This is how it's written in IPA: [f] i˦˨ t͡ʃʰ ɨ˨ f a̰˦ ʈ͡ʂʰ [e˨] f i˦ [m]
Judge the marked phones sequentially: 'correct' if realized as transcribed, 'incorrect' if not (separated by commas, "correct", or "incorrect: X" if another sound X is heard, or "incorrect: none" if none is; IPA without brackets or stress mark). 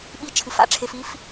incorrect: ɓ, correct, incorrect: f